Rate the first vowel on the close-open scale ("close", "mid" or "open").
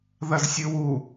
open